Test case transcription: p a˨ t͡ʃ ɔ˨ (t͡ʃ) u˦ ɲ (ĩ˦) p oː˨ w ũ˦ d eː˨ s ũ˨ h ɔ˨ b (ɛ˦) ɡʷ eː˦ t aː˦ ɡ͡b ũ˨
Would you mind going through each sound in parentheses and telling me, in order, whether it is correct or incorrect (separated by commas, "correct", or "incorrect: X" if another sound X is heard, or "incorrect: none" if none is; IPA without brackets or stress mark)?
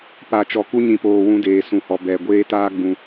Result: incorrect: k, incorrect: ĩ˨, incorrect: ɛ˨